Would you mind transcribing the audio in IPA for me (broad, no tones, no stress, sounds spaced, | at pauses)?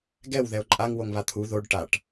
ɡ ɛ w ð ɛ o̯ ǃʼ a ŋ w o ŋ β a t̪ʰ u ð o ɖ ʈ a ʈ